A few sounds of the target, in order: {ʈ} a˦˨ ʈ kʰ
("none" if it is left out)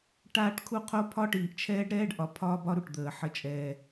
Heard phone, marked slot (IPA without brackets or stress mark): ʈ